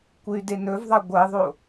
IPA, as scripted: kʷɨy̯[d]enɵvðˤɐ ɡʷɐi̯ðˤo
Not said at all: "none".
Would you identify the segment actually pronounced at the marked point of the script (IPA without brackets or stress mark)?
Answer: d